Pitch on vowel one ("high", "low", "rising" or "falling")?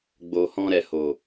low